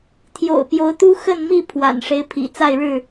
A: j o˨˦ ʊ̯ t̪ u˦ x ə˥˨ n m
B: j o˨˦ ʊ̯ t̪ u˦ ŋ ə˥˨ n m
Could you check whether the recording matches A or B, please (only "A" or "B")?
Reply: A